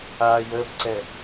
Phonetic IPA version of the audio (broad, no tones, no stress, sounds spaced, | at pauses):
aː j əː b ǀ ɛ